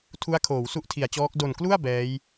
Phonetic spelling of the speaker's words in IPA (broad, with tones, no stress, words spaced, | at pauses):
tʰu˦˥a̯ kʰoː˩˦wsu˥˩ʔtʰi˩˦a̯t͡ɕɔː˦˥k̚ do˨˩nklu˥˩a̯ bɛː˦˥j